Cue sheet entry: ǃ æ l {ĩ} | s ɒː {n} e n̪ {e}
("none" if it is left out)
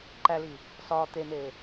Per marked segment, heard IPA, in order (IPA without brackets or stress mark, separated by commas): i, t̪, eː